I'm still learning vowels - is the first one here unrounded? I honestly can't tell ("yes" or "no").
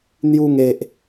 no